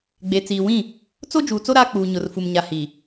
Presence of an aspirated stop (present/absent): absent